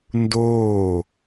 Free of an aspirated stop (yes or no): yes